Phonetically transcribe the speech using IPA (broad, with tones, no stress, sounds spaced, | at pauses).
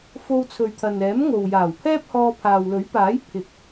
f o˧ w t͡sʰ ɵ˨ ɥ t̪ʰ ɐ˨ n ɛː˨˥ m ŋ o˨ w j aː˨˩ w pʰ ɛː˥ p̚ h ɔː˧ pʰ aː˨ w l ɵ˨˥ ɥ p aː˨˥ j pʰ ɪ˨˥ k̚